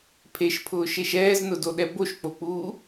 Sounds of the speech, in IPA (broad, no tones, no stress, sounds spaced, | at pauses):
pʰ e ʃ pʰ ʊː ʃ e ʃ ɛː z n ʊ d o ɗ ɛ b o ʃ k͡p o k͡p uː